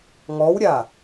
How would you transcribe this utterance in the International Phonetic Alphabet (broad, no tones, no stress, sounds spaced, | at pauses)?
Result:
ŋ ɔ w ɾʲ a